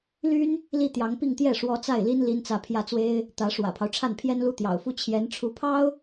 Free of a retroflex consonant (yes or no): no